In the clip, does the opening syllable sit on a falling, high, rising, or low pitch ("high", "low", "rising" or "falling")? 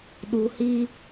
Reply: low